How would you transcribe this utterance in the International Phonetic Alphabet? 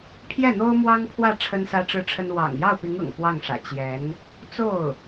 pʰ j ɛ˥˩ n̪ o˥ ʊ̯ m w ɑ˥ ŋ pʰ w ä˥˩ ʈ͡ʂʰ ə˥ n s ä˥ ʈ͡ʂ ɻ̩˥˩ ʈ͡ʂʰ ə˥ n w ɑ̰˨˩ ŋ j ɑ˥˩ ʊ̯ p i˧˥ ŋ ɤ̰˨˩ ŋ k w ɑ˥˩ ŋ ʂ ä̰˨˩ t͡ɕ j ɛ˧˥ n | t͡s o˥˩ ʊ̯

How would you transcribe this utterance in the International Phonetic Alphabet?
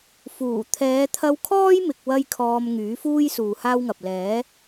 f uː˨˩ t̪ʰ ɛː˨˧ t̪ʰ ɐ˧ w kʰ ɔː˥ j m ɪ˧ k̚ w ɐ˥ j kʰ ɔː˧ m ŋ yː˨˥ f uː˥ j s uː˨ h aː˥ w ŋ ɐ˨ p̚ l ɛː˨˥

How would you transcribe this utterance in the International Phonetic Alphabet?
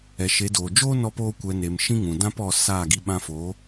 ɛ˨ ʃ e˨˦ d oː˨ d͡ʒ oː˦ n ɔ˧ p oː˧ kʷ ɛ˨ n e˨ m ʃ ĩ˧ ŋ ũ˨ d ã˦ p ɔ˧ s aː˦˨ ɡ i˧ ɓ ã˧ f oː˨˦

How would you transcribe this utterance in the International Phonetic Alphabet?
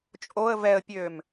t͡ʃʼ o ə̯ v ɛ ə̯ pʲ øː m

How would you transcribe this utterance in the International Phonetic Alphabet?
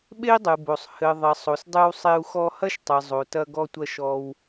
ɓ e˥ i̯ dˤ ɨ˩ b o˩ sˤ h ɘ˩ ðˤ ɐ˩ sˤ o˩ s dˤ ɨ˧ w sˤ e˧ u̯ x ɔ˧ h ɐ˥ ʃ tˤ ɨ˩ zˤ o˩ t ɐ˧ ɡ ɔ˧ tʷ ɐ˧ ʃ ɔ˧ w

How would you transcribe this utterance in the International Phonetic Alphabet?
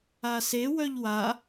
a s e w œ ʎ w a

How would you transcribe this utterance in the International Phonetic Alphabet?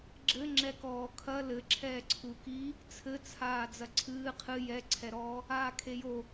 ɡ͡ǁ ɘ ŋ͡ǁ ɛ k ɔː kʰ ɐ l ɘ ǁʰ ɛː ǀʰ u k i | t͡sʰ ɘ t͡sʰ aː d͡z ɐ ǀʰ ɨː qʰ ɨ j ɛ ǀʰ ɛ ɾ ɔː | aː kʰ e j o

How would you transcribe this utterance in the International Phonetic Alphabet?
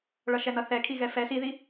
ɭ ʌ ʃ ɛ n ʌ θ ɛ kʰ i ɣ ɛ f ɛ s i ð i

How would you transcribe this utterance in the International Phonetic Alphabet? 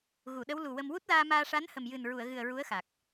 ɣ u˨˩˨ ɗ ə˧˥ w l u˨˩ w ə˧ m w u˦˥ t̚ l aː˧ m aː˧ ʂ a˧˥ n h ə˨˩ m j ɨ˨˩ n ɹ u˨˩˨ ə̯ ɣ ɨ˨˩ ə̯ ɹ u˧˥ ə̯ x a˨˩ k̚

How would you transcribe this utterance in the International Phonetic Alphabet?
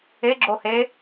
e ɡ͡ǁ o h e

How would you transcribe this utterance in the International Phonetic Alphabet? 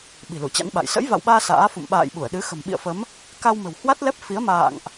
ɓ i̤˨˩ l u˧˩ t͡ɕ a̰˧˥ n ɓ a̰˧˨ j s ə̰˧˥ j v a̰˧˨ w ɓ aː˧ s a̰ː˧˥ f ṵ˧˨ m ɓ a̰ː˧˨ j ɓ u˧˩ ə̯ ɗ ɨ˨˦ x ə̤˨˩ m ɓ ḭ˧˨ ə̯ f ə˨˦ m | k a˧ w m ə̤˨˩ w h w a˦˥ t̚ l ɛ˦˥ p̚ f i˨˦ ə̯ m a̰ː˧˨ ŋ ʔ

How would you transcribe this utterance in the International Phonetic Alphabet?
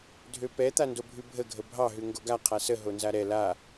dʱ ø p ɛ t̪ a n d o bʱ ʉ bʱ ə ɡʱ ə bʱ ɑ ɦ ʉ ŋ ɡ o ɡ a qʰ a s ə ɦ o n z a ɾ ɛ l a

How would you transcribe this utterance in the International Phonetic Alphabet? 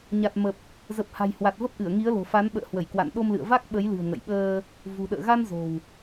ɲ a˨˩ t̚ m ə˨˩ p̚ | z ə˨˩ p̚ h a̤˨˩ j h w a˨˩ t̚ v ə˦˥ p̚ ʔ ɨ˧˩ ə̯ ŋ i˨˦ ə̯ l o̤˨˩ f a˨˦ n ɓ ə̰ː˧˨ h w ə˧˩ j k w a̰˧˨ n ɗ o˧ m l ɨ̰˧˨ ə̯ v a˦˥ k̚ ɓ ə˨˦ j l ɨ̤˨˩ ə̯ ŋ ə̰˧˨ j ɓ əː˧ | v ṳ˨˩ ɗ ə̰ː˧˨ ɣ a˧ n z o̤˨˩ w

